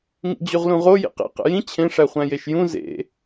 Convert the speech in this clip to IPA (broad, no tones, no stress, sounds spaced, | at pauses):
ŋ ḭ d͡ʑ u ʁ l ũ ʁ o j ḭ q ḭ q ḛ j ĩ t͡ɕʰ ẽ ʂ æ χʷ æ̃ j e ʃ j ũ z ḛ